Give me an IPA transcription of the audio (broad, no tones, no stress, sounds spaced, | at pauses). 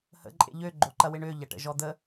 h ə̰ ǃʼ ḛ ʎ ø ɡ͡ǃ o ǃ ɐ w ɪ ɳ ø ʎ ɐ ʈ ə̰ ʒ ɔ d̪ ə